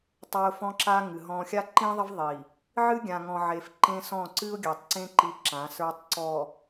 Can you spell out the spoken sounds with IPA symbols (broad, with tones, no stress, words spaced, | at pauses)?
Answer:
tˤa˦ʊ̯fɔ̃˦ǁa˦ ŋɨ˨ɦɔ̃˦ xʲa˦ǃĩ˦ðˤʌ˦v ðˤi˨ | ʕɨ˦ɡʲã˨ŋɔ̃˨ʕe˨f ǃẽ˦sɔ̃˦˨ ǀɨ˦ʊ̯ɡʲa˨tˤǀẽ˦ ǃi˦ǁã˨˦sə˞˦tˤ ǀɔ˨